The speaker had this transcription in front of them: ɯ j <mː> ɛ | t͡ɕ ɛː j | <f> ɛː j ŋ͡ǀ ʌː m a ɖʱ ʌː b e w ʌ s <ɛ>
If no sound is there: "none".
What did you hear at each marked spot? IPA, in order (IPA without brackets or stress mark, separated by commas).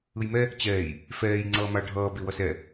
m, f, ɛ